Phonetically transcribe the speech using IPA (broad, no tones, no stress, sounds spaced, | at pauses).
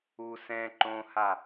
u s ɛ̃ ǃ õ h a